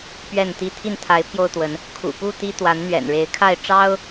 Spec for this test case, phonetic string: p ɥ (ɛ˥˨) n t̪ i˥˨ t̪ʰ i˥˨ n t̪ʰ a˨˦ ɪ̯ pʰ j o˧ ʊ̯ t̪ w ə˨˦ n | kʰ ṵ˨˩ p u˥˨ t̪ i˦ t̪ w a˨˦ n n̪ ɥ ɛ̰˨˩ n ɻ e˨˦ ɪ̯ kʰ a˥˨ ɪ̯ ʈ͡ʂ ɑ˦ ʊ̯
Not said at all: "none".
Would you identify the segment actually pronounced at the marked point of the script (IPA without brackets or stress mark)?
ɛ˥˨